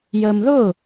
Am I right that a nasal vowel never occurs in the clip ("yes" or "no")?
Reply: yes